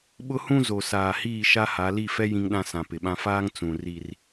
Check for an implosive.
present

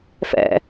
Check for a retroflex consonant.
absent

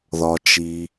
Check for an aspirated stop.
absent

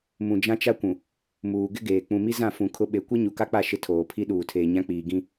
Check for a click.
absent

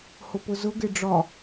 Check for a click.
absent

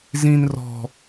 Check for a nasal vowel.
present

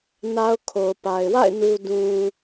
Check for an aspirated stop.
present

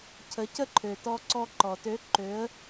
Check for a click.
present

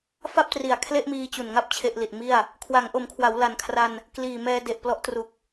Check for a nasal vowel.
absent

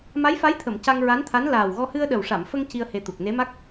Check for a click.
absent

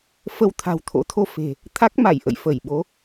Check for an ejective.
absent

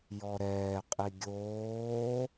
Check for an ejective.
present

